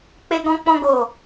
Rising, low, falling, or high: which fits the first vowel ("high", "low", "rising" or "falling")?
high